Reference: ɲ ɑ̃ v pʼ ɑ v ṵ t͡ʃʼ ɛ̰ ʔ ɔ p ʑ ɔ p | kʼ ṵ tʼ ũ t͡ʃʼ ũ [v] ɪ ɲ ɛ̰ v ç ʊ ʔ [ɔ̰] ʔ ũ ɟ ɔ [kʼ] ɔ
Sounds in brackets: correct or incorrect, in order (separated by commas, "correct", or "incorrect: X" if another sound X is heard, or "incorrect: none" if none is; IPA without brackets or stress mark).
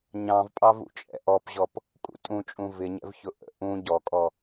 correct, incorrect: ə̰, correct